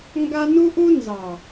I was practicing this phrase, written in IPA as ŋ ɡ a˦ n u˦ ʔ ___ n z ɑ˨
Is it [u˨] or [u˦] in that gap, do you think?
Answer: u˦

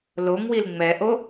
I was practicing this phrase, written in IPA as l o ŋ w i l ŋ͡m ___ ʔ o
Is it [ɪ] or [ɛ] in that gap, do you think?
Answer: ɛ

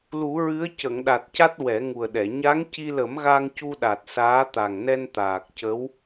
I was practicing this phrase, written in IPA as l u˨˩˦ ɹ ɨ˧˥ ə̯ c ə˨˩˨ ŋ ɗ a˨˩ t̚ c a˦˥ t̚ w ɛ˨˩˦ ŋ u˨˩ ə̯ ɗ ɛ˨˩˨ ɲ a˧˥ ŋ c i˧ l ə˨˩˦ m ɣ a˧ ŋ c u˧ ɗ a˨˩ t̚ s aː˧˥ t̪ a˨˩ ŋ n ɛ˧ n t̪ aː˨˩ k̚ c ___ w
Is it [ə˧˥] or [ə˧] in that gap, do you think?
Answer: ə˧˥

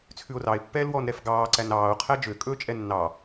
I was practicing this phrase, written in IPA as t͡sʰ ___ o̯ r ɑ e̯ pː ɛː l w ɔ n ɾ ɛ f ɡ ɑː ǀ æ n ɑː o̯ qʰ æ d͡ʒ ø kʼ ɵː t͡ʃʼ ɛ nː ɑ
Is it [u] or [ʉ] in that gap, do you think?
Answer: ʉ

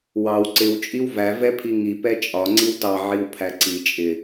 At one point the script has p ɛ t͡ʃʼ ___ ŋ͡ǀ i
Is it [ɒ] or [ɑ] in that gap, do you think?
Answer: ɒ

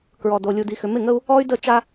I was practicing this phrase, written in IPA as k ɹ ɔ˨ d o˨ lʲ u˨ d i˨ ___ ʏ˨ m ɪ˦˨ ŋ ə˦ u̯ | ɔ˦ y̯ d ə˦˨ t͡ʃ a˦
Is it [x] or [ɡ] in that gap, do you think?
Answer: x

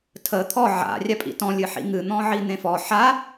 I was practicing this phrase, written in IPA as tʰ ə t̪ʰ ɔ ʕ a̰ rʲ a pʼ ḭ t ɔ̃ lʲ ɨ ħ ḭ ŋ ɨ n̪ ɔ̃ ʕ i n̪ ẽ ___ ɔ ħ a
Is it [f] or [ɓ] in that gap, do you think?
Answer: f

